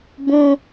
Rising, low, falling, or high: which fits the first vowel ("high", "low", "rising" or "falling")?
high